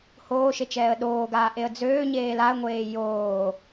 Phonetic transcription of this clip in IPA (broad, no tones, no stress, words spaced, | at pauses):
hoːʃe t͡ʃɛːə̯ɗoːɡaː ʔeə̯d͡zøːɲeːl aə̯ŋʷeː joː